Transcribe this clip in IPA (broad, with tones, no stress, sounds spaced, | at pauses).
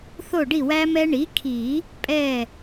θ o˥˩ ɖ i˥˩ w æ˦˥ m ɛ˦˥ ɳ i˩˥ kʰ i˨˩˦ | pʼ ɛ˥˩